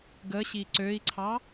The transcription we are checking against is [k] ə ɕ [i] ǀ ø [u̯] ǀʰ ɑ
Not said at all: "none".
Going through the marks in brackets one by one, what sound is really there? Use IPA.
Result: ɡ, i, i̯

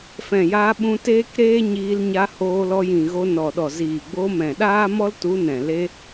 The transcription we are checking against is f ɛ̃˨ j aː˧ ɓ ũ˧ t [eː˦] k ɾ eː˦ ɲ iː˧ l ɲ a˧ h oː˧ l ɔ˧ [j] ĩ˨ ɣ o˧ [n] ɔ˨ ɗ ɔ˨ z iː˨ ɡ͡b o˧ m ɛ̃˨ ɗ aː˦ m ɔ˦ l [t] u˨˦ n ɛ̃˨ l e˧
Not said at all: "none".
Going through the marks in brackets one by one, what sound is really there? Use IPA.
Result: eː˦, j, n, t

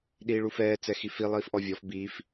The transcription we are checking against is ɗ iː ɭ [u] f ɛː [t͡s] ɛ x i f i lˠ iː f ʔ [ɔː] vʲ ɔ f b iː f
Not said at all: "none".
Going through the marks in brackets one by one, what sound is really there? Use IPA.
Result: u, t͡s, ɔ

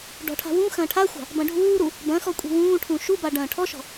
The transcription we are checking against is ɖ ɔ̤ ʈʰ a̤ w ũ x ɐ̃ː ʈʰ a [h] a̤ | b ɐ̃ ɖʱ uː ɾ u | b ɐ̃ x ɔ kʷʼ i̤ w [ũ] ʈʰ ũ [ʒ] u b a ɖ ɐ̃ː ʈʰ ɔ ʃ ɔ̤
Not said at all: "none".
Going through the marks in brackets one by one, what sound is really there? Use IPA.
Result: xʷ, ũː, ʃ

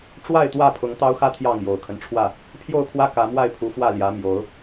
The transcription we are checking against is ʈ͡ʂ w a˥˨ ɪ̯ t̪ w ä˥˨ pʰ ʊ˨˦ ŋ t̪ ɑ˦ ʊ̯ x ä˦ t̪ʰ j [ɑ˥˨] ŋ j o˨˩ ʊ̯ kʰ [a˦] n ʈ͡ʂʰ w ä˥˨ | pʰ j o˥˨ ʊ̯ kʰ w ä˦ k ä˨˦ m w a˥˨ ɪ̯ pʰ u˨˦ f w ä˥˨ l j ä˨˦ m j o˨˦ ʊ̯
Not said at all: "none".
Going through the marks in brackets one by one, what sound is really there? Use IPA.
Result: ɑ˥˨, ə˦

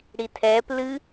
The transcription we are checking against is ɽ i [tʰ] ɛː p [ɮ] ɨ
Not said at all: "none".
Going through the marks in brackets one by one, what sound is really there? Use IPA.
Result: tʰ, l

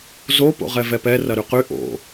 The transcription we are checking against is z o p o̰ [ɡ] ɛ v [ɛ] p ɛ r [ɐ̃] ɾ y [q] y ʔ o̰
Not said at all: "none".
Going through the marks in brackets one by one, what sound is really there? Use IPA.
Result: ʁ, ɛ, ɐ, q

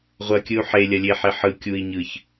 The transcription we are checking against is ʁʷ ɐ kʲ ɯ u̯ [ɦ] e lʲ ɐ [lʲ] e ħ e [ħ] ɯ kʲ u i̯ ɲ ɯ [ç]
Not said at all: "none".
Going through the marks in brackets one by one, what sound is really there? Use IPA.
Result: ħ, lʲ, ħ, ç

